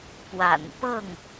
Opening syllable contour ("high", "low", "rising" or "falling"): low